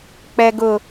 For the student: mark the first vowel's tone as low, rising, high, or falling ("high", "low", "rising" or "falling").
high